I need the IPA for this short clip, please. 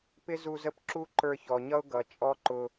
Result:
p ɪ˦ z u˧ z ə˦˨ p ǁ u˦ ǃ ə˞˧ ç ɔ˨ ɲ ʌ˦ ʊ̯ ɡ ʌ˨ t͡ʃʼ ɔ˦ ǃ ʊ˧

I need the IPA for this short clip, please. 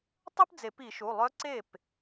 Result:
tˤ œ˥ p d͡z e˨˩˦ p i˨˩˦ ʃ u˩˧˩ lˠ œ˧˥ ǀ e˥˩ p

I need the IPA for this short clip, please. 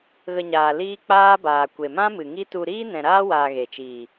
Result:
ɣ ə˧ ɲ aː˨ l iː˦ k͡p aː˦ b aː˨ kʷ e˨ m ã˦ m ɨ˨ ŋ i˦ t u˧ ɾ iː˦ n ɛ̃˨ ɾ aː˦ w aː˧ ɣ e˨ t͡ʃ iː˨

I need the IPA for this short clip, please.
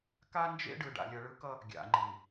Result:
k a˦ n d͡ʒ ḛ˦ ɖ ɯ˨ ɖ a̰˨ lʲ ʌ˨ ɭ ɯ˦ k ʌ˦ | ɡʲ a̰˨ ŋ͡ǃ i˨

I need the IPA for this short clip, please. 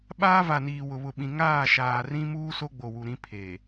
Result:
ɓ aː˦ v a˨ n iː˨ w ʊ˨ β ʊ˨ ɓ ĩ˨ ŋ aː˦˨ ʃ aː˨ r ĩ˦ m uː˦ s o˦ ɡ͡b o˨ w u˨ ɾ ĩ˦ pʰ eː˨

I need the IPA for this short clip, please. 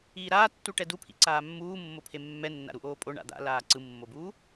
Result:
iː ɾ aː tː u ʈ ɛ d u pʰ ḭ ǀ aː mː uː mː o pʰ e mː ɛ nː a̰ ɾ u ʔ oː pʼ o ɳ a̰ d̪ a̰ l aː ǀ ɯ mː o b uː

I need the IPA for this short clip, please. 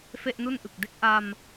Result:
f e˥˩ ʔ n u˥˩ n ʔ ɯ˨˩ k̚ d e˦˥ k̚ ʔ a˧ m

